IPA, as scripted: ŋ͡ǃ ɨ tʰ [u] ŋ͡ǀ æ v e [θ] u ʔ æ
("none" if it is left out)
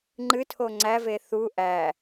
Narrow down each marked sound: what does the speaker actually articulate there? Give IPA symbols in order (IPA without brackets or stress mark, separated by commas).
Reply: o, θ